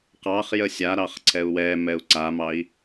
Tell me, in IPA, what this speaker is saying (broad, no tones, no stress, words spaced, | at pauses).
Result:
qɑχ jəsʲaɾɑχ ǀʰɛu̯wɛmɛu̯ ǀamɑi̯